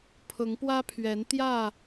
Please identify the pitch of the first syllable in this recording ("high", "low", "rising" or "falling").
rising